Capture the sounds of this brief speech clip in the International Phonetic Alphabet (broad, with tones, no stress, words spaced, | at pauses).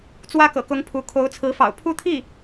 t͡swä˥kɤ̰˨˩kʊ˧˥ŋ pʰu˧˥ kʰo˧˥ʊ̯t͡sʰɹ̩˧˥fɑ̰˨˩ʊ̯ pʰu˥˧t̪ʰi˥˩